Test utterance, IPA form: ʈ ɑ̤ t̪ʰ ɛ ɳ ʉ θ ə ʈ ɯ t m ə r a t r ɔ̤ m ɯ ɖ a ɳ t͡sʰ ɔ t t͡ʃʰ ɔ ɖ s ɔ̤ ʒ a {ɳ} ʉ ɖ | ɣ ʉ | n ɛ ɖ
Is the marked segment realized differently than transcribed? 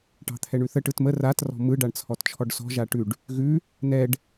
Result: yes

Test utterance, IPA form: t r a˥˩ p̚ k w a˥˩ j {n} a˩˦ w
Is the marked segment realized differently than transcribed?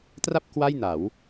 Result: no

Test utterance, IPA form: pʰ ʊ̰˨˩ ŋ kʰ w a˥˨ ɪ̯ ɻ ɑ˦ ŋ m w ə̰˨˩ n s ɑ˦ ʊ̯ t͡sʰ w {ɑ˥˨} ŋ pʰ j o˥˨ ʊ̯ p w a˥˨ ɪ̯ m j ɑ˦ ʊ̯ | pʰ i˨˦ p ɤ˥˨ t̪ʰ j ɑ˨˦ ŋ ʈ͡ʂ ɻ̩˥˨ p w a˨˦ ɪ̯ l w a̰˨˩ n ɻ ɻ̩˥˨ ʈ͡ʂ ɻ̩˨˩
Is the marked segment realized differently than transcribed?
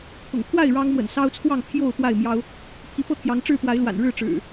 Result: no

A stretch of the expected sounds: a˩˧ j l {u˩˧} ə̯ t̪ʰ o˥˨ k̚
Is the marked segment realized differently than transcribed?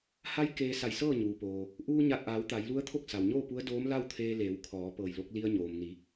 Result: yes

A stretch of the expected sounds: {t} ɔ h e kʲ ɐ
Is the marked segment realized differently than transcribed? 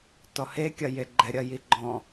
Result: no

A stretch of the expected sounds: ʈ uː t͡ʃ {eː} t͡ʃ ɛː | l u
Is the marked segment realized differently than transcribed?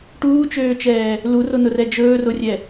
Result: yes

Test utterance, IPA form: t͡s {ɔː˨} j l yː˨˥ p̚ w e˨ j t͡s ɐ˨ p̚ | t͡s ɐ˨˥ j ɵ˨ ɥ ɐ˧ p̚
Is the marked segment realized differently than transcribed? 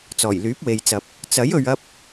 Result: yes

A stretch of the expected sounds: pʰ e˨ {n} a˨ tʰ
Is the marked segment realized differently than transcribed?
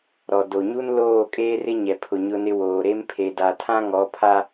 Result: yes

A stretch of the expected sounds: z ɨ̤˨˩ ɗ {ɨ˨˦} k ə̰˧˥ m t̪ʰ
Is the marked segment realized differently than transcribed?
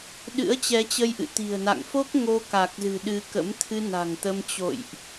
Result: no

